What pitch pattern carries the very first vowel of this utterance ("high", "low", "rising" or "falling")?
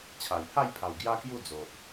low